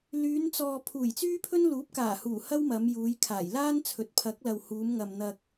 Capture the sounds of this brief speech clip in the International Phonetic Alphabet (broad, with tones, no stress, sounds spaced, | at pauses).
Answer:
l yː˨˧ n t͡s ɔː˨ pʰ uː˨˩ j t͡s yː˥ pʰ ɵ˥ n l uː˨˥ p̚ k aː˨˩ h uː˨˩ h ɐ˥ w m ɐ˨˧ m j uː˨˧ j kʰ aː˨˩ j l aː˥ n t͡sʰ ɵ˨ t̚ pʰ ɐ˨˥ k̚ l ɐ˨ w h uː˨˧ m ŋ ɐ˨ m n̪ ɐ˧ k̚